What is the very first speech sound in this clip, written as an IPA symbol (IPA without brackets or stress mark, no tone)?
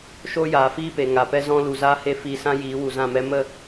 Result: ʃ